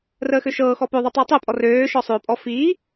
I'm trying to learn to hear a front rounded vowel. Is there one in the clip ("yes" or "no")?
yes